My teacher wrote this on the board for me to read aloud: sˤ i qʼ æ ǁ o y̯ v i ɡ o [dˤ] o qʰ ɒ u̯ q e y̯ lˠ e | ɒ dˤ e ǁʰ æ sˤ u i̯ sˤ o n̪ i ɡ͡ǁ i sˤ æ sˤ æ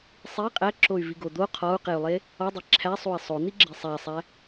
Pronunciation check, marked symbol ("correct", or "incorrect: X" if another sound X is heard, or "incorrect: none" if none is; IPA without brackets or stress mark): incorrect: d̪